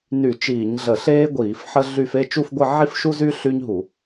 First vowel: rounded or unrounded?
rounded